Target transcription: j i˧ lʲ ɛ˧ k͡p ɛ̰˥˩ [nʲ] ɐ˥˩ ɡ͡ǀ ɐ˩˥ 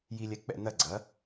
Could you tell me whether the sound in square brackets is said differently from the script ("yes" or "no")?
yes